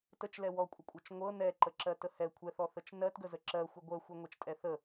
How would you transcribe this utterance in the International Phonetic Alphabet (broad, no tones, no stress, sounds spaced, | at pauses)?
t ə t͡ʃ l ɛ w ɔ kʷʼ ə kʷʼ ɤ t͡ʃ ŋʷ ɤ n ɛ ǃ ə ǁ ɜ t ə h ɛ kʷʰ ɛ θ ɔ θ ə t͡ʃ n ɜ t ɡ ə z ə ǁ ɜ xʷ ə ɡʷ ɜ xʷ ɤ ŋʷ ɛ t͡ʃ tʼ ɛ θ ə